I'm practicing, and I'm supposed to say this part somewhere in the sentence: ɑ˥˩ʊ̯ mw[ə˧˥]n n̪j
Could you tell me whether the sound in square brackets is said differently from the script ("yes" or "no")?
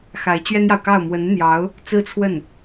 no